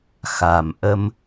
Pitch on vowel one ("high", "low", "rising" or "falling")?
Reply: low